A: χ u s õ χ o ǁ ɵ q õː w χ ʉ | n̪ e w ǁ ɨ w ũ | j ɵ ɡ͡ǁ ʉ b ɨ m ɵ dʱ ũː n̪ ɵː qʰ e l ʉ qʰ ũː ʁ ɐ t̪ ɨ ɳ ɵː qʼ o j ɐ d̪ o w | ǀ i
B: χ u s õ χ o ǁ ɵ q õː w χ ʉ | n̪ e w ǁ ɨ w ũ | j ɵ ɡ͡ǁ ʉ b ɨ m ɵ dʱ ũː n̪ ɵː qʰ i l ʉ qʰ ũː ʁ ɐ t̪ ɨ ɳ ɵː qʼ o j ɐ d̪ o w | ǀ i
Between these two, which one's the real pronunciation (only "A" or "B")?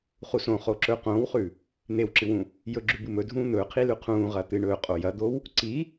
B